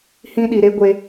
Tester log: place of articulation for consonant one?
glottal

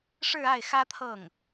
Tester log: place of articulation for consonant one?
retroflex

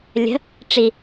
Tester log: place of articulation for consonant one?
alveolar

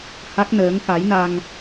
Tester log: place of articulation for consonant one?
glottal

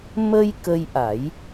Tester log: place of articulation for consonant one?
labial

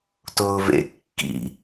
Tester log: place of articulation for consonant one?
alveolar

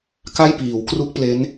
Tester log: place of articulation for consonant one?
velar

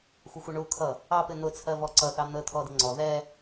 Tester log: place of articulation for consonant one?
velar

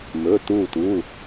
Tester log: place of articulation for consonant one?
labial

